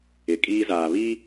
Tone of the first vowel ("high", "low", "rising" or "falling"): low